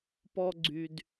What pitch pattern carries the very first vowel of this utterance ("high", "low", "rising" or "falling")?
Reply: high